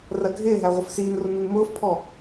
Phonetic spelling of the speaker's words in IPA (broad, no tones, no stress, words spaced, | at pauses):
rɜɡʱɪːɦæ ʁʷəfsiːnrʊ nunmʊːfpʰɔ